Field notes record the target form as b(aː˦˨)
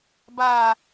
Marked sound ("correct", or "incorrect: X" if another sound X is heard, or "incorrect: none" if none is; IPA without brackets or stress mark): incorrect: aː˨